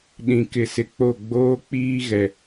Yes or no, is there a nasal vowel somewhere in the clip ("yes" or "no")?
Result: yes